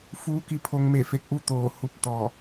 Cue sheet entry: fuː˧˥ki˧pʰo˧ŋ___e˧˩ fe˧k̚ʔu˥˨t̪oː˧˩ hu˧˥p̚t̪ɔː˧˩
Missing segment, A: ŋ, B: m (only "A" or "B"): B